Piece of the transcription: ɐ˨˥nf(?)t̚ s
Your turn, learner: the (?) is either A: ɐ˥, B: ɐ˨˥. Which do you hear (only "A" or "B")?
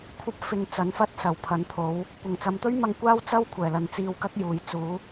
A